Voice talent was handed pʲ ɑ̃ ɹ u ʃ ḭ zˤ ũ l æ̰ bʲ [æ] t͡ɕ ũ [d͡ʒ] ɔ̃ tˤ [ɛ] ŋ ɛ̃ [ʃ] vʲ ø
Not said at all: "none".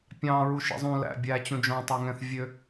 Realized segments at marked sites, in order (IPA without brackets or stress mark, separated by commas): æ, d͡ʒ, ø, θ